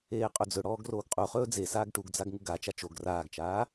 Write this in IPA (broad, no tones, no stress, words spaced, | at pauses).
eːqʼɵd͡zɵɽɔːɡ roːɡqʼuχɵː d͡zesaːɡ ʈuɡd͡zaɡ ŋuɡat͡ʃa t͡ʃoɡ raːɡt͡ʃaː